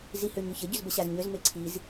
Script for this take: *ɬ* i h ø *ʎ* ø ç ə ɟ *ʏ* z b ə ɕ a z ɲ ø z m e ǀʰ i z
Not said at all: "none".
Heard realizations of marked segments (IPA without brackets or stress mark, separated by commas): z, ɲ, ʏ